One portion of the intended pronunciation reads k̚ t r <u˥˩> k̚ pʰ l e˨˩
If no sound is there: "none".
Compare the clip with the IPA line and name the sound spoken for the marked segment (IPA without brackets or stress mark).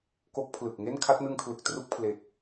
u˥˩